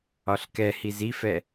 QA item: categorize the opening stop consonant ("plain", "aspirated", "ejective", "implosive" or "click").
plain